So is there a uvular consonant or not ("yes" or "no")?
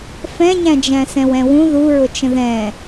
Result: no